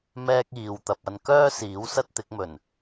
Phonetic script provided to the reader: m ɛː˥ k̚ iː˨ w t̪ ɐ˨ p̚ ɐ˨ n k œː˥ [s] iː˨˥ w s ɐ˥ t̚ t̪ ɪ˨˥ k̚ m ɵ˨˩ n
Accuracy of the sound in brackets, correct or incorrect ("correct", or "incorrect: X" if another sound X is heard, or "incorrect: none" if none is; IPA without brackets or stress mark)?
correct